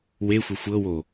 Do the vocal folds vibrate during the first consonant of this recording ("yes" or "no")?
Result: yes